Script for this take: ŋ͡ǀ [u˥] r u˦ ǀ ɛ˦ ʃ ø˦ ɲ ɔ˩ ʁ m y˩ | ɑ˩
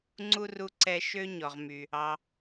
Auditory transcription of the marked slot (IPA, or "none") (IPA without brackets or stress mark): u˥